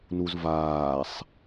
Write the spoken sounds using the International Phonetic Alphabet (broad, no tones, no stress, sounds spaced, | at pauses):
n u z v aː sˤ